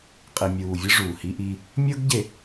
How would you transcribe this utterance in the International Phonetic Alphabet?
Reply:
qʼ i˨ mʲ uː˨ vʲ ɯ˦ ʐ uː˨ h i˦ ʔ iː˦ | mʲ ɤ˦ ɡ ɟ e˨

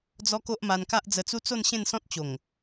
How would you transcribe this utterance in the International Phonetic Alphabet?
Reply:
d͡z ɔ˦ k o˦ ʔ m a˧ n k a˦ ʔ d͡z ə˧ t͡s u˦ t͡s o˥˧ n ɕ ẽ˥˧ n s ɔ̃˦ t̚ t͡ɕ o˨˩ ŋ

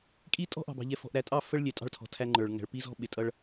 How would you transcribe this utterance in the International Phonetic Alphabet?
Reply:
kʼ i˦ tʼ ɔ̤˦ ʔ ɑ̤˨ b ɑ̤˨ ʎ ɛ˨ f ɔ̤˨ ʔ ɾ æ˨ tʼ ɑ˦˨ f ə˦ ɭ lʲ ɛ˨ tʼ ɑ̤˦˨ ɭ tʰ ɔ̤˨ tʰ æ˦ ŋ͡ǃ ə˞˨ ɭ ŋ æ̤˨ ɭ p i˦ z ɔ̤˦ ɓ ɪ˨ tʼ ʌ˦ ɭ

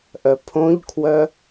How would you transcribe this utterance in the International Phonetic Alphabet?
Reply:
ʔ œ pʰ õ ʎ kʰ w œ

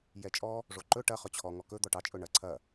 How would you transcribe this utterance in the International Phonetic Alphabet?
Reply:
j ɛ t͡ʃʼ ɔ | ʐ o ǃ ɵ ʈ ɐ χ ɵ t͡ɕʰ ɔ ŋ ɔ k ɵ d̪ ɔ ʈ ɑ t͡ʃʼ ɵ ɳ ɐ ǀʰ ɐ

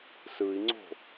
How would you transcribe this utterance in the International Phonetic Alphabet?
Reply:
s ɯ i̯ ŋ͡ǀ o̤

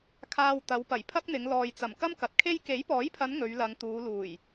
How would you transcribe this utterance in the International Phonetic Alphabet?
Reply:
kʰ aː˧ w t̪ ɐ˨˧ w p ɐ˨˩ j pʰ ɐ˥ k̚ n̪ ɪ˨˧ ŋ l ɔː˨ j t͡s ɐ˨˩ m k ɐ˥ m k ɐ˨ t̚ kʰ e˥ j k e˨˥ j p ɔː˨˥ j pʰ ɐ˨˧ n ŋ ɵ˨˧ ɥ l ɐ˨˧ ŋ t̪ uː˨˧ l uː˨˩ j

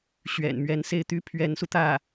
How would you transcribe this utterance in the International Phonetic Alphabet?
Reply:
ɕ ɥ ɛ̰˨˩ n m ɥ ɛ˧˥ n s e˥˩ ɪ̯ t̪ y˥ pʰ ɥ ɛ˧˥ n s u˧ t̪ ä˥˩

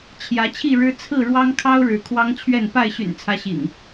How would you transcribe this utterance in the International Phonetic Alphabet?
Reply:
t͡ɕʰ j ä˨˦ t͡ɕʰ i˥˨ ɻ ɻ̩˦ t͡sʰ ɹ̩˥˨ ɻ w ɑ˦ ŋ kʰ ɑ˦ ʊ̯ ɻ ɻ̩˨˦ kʰ w ɑ˦ ŋ t͡ɕʰ ɥ ɛ˥˨ n p a˥˨ ɪ̯ ɕ y̰˨˩ n t͡sʰ ä˨˦ ɕ ḭ˨˩ ŋ

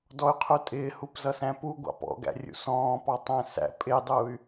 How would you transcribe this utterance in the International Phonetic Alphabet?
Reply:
d ɔ y̯ qʰ u tʼ ɪː h u p z ʌ s æ̃ p u ɡʷ ɑ̰ p ɔ̰ ɡ æ̰ rʲ ṵ s ɔ̃ː p ɑ tˤ æ̃ s æ̰ pʼ ɪ dˤ uː y̯

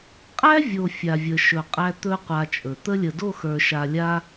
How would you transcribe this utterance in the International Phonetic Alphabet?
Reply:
qʼ æ˦ vʲ o˨ fʲ a˨ vʲ ə˨ ʃ ɵ˨ qʼ æ˧ t̪ ɵ˦ qʷ a˧ t͡ʃʼ ɵ˨ t̪ ə˧ lʲ ə˨ d o˦˨ x ə˞˨ ʃ a˨ lʲ a˧

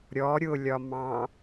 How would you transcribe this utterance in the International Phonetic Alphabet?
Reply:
ɾʲ ɔ ɾʲ ʊ lʲ ɒ m ɑ̃

